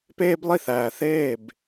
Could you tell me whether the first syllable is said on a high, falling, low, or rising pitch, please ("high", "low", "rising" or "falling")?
high